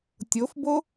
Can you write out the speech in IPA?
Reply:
tʲofbo

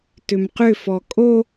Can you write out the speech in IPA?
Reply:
tʏmqʏfɔ kʼo

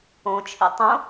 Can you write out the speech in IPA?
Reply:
õt͡ʃʰḭ tˤõ

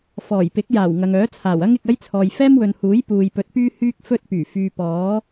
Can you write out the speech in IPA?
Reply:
fɔː˨˩j pɪ˨˥k̚jaː˨˩w ŋɐ˨ŋœː˨˥ t͡sʰaː˨˩wɐ˥ŋɪ˨k̚ɐ˥j t͡sʰɔː˨jfɛː˥mwɵ˨nhuː˨˥j puː˨jpɵ˨˥t̚pyː˥ hyː˥k̚fɵ˥t̚pyː˨˩ fyː˨ pɔː˨˥

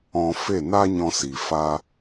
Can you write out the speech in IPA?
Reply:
ɔ̃˧fe˦˨ na˦ɲɔ̃˧si˨ fa˦

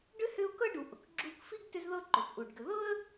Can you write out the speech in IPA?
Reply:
ɖʏ˥hʏ˦ʊ̯kɤ˥ ɖu˨ʔʊ˩kɡ͡ǁu˦k fi˥ɡtʏ˦zðɤ˦ ǃʏ˩tʔu˩ɖɡʏ˨ ðɤ˥ə̯

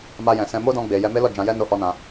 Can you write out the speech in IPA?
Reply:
ma˧jɛ̃˨sɛ̃˧ mo˦dɔ̃˧ɡ͡be˨jɛ˧ me˦lɔ˦˨d͡ʒã˧jɛ˦ no˦hɔ˦nã˧

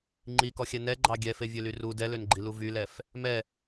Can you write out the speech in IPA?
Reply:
ŋ͡ǃikɔxʲɛ nɛɡ͡ǃɑ ɡʲɛfevʲøly ru dɛlønɡ͡ǃilu vylɛf | mɛ

